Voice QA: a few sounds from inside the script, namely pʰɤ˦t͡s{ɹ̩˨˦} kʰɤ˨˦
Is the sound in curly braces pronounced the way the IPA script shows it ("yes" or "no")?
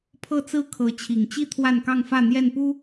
no